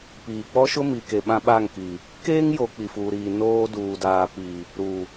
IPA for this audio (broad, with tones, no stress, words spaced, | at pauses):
piː˨ k͡pɔ˦ʃʊ˦mi˨ke˨ ɓã˦ɓa˦˨ŋki˨ | keː˦ŋjo˨ k͡pi˨fuː˨ɾiː˨ noː˦ duː˨daː˨pi˨ | ɾu˨